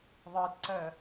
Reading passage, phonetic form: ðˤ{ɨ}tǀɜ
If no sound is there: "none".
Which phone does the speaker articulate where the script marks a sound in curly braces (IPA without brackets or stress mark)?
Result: ɨ